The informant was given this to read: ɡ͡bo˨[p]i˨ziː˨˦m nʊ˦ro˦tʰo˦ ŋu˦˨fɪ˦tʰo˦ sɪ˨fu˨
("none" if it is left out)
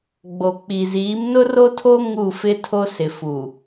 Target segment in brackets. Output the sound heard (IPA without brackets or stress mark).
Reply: k͡p